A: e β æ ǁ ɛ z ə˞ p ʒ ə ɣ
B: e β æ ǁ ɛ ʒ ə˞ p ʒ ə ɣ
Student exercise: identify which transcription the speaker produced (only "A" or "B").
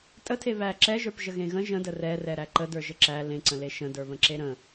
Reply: B